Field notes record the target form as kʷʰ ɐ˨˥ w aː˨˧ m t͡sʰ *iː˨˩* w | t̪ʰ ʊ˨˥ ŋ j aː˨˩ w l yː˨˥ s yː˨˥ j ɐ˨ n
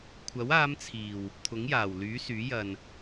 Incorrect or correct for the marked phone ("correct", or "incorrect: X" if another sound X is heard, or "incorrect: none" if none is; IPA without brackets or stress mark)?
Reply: correct